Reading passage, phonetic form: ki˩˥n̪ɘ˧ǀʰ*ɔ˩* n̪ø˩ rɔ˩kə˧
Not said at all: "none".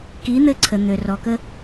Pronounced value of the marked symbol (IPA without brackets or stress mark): ə˩